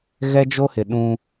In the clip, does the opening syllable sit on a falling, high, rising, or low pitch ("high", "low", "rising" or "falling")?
high